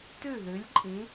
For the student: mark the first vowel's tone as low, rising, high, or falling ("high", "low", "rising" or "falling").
falling